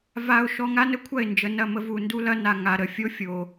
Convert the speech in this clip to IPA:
va˧ʊ̯ ʃɔ˧ŋa˦nə˦kʷʰɐ˦˨ɪ̯ nd͡ʒə˨nɐ˦˨mə˧ vu˨ndu˦lɐ˦ na˨ ŋa˨ ɾə˨fʲo˦fʲo˨

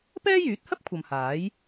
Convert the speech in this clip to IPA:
pɛː˥jyː˨˥t̚hɐ˥p̚ kʷʰɐ˨mhaː˨˥j

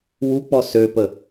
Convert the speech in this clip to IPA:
wuk͡pɔ søpə

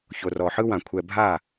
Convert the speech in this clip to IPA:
ço˨rɔ˨ħɯ˦wã˨ kʷʰɛ˨bʱa˦˨

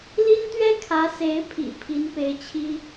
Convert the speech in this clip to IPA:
li˥nt̪ɥɛ˥ kʰä˧˥se˧˥ɪ̯pʰḭ˨˩ pʰi˧˥n pe˥ɪ̯ t͡ɕʰi˥

